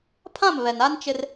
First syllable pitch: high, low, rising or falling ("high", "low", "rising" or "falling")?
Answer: falling